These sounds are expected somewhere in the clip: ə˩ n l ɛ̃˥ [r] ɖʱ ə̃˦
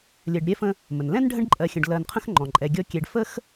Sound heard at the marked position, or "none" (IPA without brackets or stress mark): n